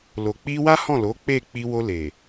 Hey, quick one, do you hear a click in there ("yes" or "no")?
no